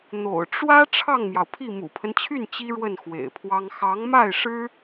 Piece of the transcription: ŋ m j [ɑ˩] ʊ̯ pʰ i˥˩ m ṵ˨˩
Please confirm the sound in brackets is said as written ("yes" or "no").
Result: yes